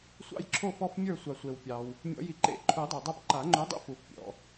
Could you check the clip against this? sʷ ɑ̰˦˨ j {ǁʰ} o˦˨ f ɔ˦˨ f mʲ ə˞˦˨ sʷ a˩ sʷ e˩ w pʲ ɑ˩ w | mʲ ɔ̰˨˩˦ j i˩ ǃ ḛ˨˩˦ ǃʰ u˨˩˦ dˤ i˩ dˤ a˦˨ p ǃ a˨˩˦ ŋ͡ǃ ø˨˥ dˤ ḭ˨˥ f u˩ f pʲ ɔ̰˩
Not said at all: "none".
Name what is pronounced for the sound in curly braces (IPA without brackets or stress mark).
ǁʰ